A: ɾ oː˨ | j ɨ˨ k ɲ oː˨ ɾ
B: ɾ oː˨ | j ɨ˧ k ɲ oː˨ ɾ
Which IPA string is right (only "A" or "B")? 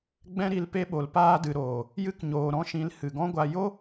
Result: B